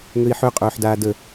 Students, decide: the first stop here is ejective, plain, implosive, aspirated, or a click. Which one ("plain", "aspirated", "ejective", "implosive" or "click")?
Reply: ejective